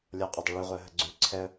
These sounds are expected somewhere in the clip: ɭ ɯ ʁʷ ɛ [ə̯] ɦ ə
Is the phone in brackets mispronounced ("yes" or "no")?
no